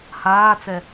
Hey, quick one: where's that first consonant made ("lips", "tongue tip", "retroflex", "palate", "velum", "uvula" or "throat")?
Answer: throat